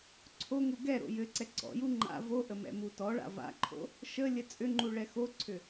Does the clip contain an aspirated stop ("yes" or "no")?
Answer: yes